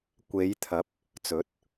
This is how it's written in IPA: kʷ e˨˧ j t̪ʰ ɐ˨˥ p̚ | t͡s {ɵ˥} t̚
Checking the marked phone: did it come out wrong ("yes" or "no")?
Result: yes